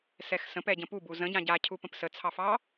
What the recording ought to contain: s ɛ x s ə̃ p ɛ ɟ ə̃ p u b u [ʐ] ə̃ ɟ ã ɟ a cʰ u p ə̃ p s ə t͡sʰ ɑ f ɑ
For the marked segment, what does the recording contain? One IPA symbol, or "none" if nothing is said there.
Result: z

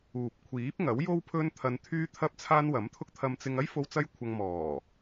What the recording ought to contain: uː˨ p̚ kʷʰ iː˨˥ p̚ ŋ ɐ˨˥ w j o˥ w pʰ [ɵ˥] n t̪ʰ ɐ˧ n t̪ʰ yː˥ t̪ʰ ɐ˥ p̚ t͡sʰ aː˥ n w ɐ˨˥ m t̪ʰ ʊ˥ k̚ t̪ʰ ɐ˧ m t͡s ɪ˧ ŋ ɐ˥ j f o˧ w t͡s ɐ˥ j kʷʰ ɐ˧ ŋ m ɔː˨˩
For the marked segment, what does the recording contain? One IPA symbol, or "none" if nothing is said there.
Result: ɵ˥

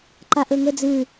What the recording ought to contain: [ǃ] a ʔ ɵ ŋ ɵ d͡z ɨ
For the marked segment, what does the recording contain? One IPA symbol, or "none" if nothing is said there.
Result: ǃ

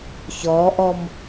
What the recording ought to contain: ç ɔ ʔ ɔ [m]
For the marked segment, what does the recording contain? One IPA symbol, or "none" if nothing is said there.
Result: m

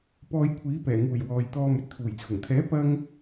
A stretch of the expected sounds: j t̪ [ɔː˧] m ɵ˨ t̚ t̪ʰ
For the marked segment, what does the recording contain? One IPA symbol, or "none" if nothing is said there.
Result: ɔː˧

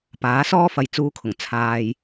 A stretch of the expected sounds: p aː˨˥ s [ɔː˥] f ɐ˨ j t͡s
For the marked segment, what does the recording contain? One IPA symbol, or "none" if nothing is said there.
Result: ɔː˥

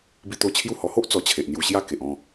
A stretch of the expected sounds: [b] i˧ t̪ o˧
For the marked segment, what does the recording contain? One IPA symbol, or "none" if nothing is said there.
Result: b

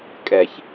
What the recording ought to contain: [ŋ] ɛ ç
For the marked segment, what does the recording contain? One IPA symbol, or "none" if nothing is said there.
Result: kʼ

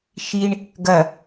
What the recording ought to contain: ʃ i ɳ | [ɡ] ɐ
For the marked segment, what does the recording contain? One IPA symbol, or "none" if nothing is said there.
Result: ɡ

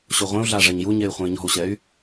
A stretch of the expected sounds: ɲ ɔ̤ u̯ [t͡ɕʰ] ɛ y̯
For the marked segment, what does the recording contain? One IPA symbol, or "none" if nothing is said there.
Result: ɕ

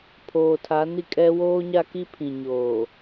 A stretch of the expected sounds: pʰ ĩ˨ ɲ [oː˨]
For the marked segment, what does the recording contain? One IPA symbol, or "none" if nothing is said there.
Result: oː˨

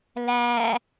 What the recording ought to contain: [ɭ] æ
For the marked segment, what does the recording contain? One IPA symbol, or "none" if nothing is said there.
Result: l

